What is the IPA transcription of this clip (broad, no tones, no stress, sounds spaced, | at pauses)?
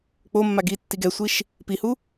k͡p o mː a ɡ i tː i ɡ ɛ sʷ i ʃ | p i h u